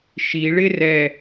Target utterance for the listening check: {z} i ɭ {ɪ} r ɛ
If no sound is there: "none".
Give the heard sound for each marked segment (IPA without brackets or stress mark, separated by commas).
ʃ, ɪ